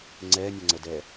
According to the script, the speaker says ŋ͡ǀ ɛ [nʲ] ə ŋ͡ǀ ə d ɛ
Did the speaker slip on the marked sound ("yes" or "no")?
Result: no